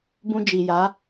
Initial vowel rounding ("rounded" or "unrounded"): rounded